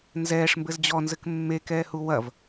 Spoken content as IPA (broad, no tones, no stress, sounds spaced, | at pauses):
n z ɛː ʂ m b ɘ z d͡ʑ ɔ n z ɘ k mː e k ɛː h u w ɐ v